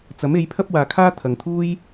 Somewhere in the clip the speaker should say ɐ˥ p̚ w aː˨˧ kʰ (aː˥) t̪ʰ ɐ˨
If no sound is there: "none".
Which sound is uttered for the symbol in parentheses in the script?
aː˥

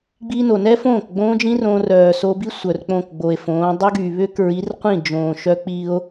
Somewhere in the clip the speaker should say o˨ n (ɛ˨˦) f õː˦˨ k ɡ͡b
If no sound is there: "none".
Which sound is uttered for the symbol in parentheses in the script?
ɛ˦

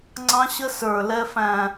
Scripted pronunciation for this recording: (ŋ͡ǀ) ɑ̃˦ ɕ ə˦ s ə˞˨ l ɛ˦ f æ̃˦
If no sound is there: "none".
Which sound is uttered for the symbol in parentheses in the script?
ŋ͡ǀ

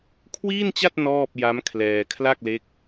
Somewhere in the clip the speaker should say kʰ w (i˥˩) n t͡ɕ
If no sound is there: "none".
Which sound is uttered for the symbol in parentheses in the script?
iː˥˩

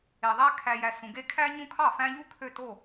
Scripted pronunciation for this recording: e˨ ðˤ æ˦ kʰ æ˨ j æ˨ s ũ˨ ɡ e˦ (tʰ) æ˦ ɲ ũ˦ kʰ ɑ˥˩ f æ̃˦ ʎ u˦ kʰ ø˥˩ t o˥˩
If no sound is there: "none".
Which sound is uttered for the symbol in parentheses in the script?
kʰ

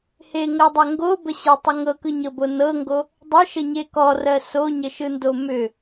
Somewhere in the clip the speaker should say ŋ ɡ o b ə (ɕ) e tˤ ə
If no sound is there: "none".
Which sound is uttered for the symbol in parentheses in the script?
ɕ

